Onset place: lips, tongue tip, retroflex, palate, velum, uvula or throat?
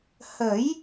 throat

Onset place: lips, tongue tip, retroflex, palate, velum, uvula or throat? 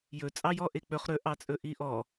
palate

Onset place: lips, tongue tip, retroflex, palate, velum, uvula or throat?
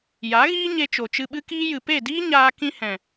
palate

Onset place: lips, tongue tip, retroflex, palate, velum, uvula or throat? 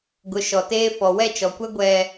velum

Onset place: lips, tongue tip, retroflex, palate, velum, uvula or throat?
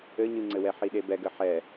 palate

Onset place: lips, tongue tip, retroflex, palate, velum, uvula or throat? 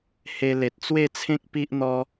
throat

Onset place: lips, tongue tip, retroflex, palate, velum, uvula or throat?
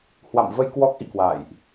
throat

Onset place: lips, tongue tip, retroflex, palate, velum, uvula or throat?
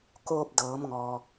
velum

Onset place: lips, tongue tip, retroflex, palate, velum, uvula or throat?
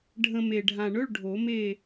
retroflex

